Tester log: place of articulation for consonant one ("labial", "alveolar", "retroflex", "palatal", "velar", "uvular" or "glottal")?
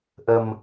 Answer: glottal